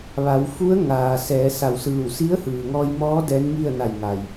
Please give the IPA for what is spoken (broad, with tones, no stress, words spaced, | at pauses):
ʋa˩˧wfu˧˥ə̯ ŋaː˩ sɛː˩˧sa˧˩wsɯː˧˩w si˧˥ə̯hɯː˩ŋɔː˧j mɔː˧˥ dɛː˧˥nŋi˥˨ə̯ na˧˩jŋa˩j